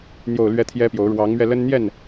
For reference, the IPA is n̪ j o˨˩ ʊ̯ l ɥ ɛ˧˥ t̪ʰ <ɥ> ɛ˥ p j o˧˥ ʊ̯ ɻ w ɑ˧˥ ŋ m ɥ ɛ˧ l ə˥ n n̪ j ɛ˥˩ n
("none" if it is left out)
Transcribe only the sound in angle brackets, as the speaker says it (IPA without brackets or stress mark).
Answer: j